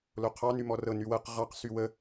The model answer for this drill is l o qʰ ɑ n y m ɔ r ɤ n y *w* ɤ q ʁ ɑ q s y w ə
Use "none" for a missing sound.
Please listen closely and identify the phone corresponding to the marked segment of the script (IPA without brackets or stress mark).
w